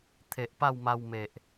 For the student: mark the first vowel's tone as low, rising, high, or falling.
low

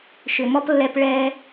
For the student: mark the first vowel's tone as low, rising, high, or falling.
low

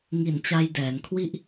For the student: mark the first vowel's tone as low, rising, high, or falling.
low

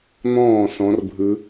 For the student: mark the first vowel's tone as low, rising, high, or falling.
falling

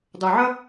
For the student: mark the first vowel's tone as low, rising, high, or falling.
low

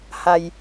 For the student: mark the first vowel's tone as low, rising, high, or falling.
low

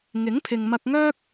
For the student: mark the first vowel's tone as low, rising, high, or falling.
rising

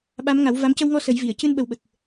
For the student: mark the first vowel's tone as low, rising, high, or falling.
rising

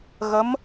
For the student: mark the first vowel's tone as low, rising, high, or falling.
rising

